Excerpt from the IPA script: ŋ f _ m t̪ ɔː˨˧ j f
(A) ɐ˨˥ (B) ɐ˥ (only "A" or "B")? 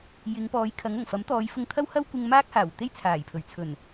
A